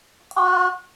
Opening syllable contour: high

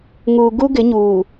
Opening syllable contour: low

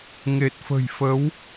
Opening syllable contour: low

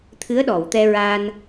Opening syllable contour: rising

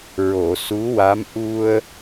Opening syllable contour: low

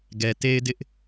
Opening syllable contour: low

